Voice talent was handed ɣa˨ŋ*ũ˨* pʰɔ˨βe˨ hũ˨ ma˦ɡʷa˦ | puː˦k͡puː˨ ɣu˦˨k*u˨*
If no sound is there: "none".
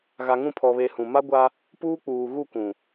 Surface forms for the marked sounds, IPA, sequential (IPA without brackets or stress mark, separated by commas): ũ˦˨, ũ˨